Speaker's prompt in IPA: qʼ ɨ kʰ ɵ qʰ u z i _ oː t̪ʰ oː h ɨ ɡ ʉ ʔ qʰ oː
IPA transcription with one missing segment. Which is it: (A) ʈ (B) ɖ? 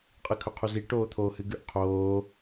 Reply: A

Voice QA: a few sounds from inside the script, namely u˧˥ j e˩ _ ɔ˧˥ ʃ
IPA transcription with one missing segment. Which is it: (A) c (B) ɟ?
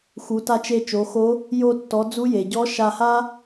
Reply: B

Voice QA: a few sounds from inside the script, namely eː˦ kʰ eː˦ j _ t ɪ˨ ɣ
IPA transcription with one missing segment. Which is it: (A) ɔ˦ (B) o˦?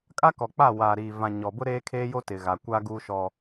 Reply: B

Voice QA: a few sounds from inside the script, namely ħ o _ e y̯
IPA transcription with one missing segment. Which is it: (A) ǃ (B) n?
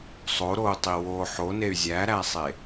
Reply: B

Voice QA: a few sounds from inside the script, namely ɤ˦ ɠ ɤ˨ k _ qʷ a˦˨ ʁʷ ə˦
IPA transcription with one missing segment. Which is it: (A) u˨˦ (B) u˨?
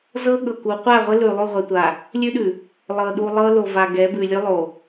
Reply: A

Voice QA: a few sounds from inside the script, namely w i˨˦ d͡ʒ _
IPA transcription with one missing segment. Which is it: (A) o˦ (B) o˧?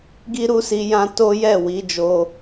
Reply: B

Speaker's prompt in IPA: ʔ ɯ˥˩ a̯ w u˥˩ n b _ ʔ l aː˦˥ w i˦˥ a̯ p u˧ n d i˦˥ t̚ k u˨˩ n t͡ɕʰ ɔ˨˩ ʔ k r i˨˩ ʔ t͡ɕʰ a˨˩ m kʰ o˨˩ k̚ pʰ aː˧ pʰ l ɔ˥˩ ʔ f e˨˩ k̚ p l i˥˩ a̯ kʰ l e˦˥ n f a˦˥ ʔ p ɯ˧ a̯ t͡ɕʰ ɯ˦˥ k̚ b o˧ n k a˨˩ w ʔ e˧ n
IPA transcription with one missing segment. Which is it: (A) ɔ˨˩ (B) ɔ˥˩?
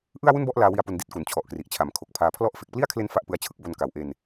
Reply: B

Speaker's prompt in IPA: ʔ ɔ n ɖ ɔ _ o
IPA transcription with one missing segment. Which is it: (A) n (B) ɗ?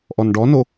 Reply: A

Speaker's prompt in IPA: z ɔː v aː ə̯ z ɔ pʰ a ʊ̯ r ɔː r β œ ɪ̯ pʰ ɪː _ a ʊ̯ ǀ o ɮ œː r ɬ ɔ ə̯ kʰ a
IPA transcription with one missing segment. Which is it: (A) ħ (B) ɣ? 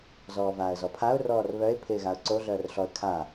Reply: B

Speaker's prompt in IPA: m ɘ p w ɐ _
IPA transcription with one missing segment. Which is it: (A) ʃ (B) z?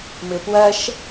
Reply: A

